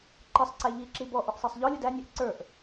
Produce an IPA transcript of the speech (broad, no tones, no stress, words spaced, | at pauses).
ǃɪsˤ ǀæʎiǁi bɔʔʊʔ sˤisˤʎɔlʲʊd ænʲæʔ ǀə˞ʔ